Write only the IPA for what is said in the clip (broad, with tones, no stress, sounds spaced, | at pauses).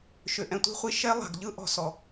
ʃ ʏ˨ ʔ ɛ̃˨ tʷ i̤˦ χʷ i˧ ʃ ɛ˦ lˠ a̤˨ ɡ ʎ ɯ˦ ʔ ɔ̤˨ s ɔ˨